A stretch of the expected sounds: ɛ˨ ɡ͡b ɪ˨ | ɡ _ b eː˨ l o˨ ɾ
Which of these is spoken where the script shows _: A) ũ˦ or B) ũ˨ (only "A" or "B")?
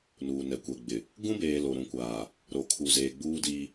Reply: A